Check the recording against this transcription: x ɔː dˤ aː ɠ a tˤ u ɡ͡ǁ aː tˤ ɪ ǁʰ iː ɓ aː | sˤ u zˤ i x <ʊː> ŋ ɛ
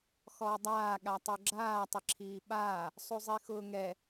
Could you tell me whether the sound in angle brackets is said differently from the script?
no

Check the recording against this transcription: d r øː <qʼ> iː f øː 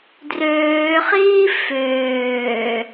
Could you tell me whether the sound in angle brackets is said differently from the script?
yes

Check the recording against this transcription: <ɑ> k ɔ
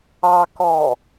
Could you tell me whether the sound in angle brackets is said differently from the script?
no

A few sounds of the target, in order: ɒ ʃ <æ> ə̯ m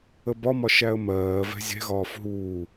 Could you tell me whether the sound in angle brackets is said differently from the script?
no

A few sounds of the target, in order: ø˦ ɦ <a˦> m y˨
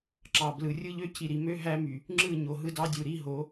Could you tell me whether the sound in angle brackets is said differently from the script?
yes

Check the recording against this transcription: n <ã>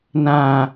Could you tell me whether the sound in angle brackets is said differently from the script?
no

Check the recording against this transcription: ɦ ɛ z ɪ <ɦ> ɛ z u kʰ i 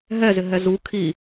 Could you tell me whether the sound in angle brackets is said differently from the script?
no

